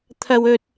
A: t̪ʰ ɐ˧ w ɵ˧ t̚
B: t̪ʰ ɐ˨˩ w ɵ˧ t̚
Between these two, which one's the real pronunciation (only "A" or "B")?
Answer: A